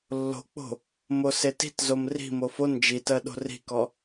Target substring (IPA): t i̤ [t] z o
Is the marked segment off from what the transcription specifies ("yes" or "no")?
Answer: no